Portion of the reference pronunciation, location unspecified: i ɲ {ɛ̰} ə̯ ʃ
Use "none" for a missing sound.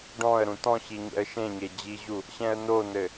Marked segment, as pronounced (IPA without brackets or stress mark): ɛ̰